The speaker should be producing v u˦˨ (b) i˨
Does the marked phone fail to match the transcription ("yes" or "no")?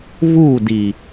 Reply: yes